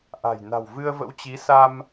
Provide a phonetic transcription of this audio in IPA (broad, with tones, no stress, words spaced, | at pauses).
ʔa̤˨˩jna̤˨˩w vɨ˧ə̯və̰˧˥wt͡ɕi˨˦ sa˧m